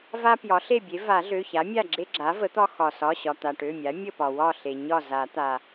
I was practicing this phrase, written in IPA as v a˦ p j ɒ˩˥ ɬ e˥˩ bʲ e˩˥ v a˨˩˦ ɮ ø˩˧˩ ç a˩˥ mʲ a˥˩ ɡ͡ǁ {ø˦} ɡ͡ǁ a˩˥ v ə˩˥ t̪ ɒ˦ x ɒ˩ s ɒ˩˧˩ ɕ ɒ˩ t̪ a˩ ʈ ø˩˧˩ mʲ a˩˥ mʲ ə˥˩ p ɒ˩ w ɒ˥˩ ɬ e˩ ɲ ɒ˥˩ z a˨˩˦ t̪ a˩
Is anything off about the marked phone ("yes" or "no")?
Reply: yes